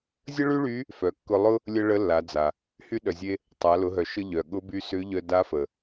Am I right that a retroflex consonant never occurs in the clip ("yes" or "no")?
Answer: no